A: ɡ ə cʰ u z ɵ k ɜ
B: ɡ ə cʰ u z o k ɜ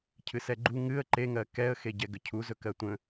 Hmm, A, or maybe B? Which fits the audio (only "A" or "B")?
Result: A